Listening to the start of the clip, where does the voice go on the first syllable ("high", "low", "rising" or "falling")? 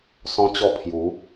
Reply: high